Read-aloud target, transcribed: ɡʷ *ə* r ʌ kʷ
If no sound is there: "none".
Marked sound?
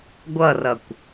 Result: ʌ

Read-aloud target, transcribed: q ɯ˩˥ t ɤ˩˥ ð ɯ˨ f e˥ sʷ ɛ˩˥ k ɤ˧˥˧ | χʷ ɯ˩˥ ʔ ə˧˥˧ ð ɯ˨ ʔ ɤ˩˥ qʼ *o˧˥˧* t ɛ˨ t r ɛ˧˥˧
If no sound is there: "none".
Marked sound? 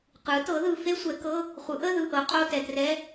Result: o˧˥˧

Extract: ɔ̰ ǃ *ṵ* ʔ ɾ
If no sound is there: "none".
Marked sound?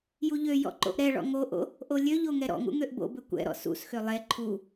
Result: o̰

